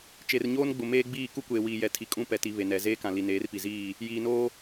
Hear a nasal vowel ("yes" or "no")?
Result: yes